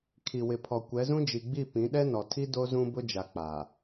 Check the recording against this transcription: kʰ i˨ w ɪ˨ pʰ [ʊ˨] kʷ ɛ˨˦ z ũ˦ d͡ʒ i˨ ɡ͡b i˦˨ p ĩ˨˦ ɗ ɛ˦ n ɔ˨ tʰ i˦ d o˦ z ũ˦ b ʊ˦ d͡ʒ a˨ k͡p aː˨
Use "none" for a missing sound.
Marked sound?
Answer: ɔ˨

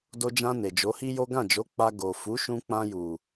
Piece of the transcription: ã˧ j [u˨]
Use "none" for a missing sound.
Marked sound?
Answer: u˨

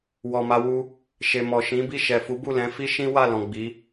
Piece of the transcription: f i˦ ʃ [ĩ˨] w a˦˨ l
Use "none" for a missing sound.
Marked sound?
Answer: ĩ˦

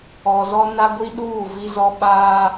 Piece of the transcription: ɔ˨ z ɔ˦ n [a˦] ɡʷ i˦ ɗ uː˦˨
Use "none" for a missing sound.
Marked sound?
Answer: a˦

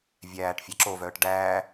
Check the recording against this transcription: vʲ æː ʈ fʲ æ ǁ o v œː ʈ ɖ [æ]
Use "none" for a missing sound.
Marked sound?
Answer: æː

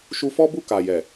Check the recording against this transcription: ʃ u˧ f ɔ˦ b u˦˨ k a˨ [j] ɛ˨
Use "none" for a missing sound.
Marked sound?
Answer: j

